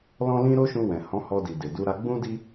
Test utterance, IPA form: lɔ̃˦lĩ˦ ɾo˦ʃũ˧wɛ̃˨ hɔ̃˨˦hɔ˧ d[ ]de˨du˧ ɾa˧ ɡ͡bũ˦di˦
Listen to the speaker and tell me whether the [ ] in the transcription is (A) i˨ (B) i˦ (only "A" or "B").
A